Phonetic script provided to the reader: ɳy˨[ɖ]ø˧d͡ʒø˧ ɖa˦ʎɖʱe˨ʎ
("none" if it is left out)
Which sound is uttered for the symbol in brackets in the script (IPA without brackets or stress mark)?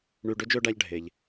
ɖ